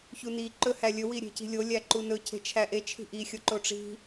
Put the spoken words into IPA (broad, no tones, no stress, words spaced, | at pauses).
çuni ǃɵhælʲɵ wiɾʲe̤ci̤lʲo lʲæǃunɵ cʰe̤t͡ʃʰæʔe t͡ʃʰi̤ʔi xʲoǃoʈ͡ʂi̤